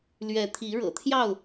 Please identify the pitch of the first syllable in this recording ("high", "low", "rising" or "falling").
rising